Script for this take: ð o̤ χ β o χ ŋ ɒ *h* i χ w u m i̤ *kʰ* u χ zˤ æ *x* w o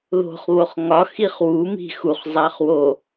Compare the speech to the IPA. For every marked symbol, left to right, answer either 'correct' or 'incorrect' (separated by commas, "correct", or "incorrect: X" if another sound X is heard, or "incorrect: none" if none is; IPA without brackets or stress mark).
incorrect: x, incorrect: x, incorrect: χ